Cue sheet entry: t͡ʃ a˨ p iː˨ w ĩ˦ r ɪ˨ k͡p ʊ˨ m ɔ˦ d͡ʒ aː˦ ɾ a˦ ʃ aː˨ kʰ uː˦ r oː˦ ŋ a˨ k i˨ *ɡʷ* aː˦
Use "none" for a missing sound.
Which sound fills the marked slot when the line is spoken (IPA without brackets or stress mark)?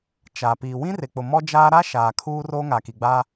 ɡ͡b